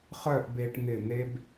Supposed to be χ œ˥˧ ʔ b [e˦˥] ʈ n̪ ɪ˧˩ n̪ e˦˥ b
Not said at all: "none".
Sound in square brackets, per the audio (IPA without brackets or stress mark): e˧